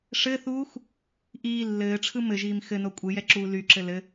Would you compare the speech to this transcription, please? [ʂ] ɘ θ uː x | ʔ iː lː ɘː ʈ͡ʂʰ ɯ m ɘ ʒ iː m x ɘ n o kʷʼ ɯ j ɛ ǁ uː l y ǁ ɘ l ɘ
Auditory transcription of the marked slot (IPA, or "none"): ʂ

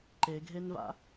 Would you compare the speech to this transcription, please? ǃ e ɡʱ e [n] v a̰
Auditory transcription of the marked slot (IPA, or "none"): n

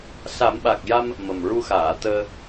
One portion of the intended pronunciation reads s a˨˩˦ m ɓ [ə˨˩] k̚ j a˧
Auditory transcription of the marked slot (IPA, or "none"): a˨˩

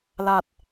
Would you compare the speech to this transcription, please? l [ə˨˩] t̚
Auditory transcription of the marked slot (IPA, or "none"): a˨˩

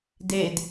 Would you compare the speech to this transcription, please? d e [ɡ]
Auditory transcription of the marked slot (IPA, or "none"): d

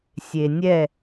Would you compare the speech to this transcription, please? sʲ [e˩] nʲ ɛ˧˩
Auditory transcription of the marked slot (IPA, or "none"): e˩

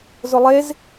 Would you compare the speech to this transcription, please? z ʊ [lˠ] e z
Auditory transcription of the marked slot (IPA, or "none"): lˠ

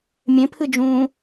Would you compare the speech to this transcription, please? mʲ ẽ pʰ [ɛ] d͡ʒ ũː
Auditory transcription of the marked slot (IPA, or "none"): ɨ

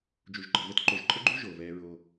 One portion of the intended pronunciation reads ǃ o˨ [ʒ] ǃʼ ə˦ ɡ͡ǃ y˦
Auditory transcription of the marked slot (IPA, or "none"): ʒ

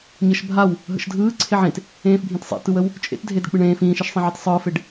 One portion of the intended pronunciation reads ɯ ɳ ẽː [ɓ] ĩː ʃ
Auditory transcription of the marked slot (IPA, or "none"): f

